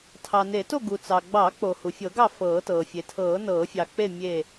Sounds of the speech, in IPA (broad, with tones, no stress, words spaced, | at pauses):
tʰɑ˩ne˨˩˦to˥˨ ɡu˩t͡sɑ˩ ɡ͡bɑ˨˩˦k͡po˩ hu˩fʲɤ˨˩˦ɡɑ˥˨ fɤː˨˩˦tɤː˩ fʲe˩tʰɤː˨˩˦ nɤː˨˩˦fʲɑ˩k͡pe˥˨ mʲe˥˨